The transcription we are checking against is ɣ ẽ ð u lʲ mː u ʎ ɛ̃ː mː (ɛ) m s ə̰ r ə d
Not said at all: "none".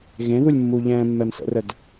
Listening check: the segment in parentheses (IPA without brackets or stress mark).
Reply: ɛ